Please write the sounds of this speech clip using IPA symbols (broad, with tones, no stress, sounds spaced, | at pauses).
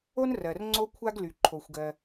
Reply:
o˥ n r ɜ˩ r ŋ͡ǀ o˥ kʷʰ a˥ ɡ l y˩ ǃʰ o˩ xʷ ɡ ɜ˩